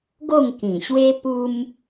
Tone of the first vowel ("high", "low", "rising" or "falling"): falling